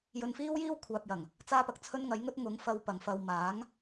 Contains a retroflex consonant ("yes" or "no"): no